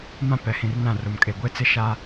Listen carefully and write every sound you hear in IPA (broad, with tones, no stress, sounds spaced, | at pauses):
m ã˦ p ɛ˨ h ĩ˨ r n ã˦˨ r o˨ m kʼ e˨ ɡʷ e˦ t͡s ɪ˦ ʃ a˦